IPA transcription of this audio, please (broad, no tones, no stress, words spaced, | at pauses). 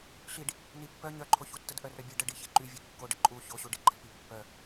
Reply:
ɬiɖ | nipːœ ɲœǃʰoçutːəd ʔœrœbʲeɖ əɖi çeǃyvʲe kːoɖə ǃʼu çoɕu ɖiɡ͡ǃəl pipːœ